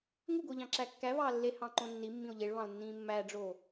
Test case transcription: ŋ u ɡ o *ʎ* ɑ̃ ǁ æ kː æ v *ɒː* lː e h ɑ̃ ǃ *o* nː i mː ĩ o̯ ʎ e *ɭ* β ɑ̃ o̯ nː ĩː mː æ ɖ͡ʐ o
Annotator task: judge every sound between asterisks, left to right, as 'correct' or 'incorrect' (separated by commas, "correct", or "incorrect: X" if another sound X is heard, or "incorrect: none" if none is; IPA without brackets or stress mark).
correct, incorrect: ɑː, incorrect: õ, correct